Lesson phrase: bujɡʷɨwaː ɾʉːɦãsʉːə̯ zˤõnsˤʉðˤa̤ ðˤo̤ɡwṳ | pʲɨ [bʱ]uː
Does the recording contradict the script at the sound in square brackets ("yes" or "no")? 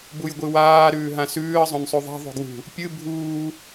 no